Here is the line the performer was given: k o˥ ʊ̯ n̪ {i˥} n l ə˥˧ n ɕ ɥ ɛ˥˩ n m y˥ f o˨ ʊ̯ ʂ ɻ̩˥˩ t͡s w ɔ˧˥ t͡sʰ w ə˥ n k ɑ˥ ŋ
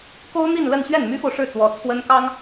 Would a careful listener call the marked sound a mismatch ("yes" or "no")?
yes